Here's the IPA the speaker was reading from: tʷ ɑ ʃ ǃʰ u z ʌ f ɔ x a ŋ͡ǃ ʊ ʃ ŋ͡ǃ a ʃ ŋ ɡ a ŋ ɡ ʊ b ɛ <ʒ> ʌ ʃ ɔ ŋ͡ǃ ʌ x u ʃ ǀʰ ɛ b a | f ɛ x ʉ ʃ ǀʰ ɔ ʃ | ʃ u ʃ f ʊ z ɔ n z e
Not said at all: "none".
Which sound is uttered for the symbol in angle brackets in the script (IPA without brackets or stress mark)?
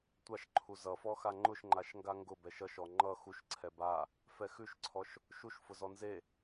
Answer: ʃ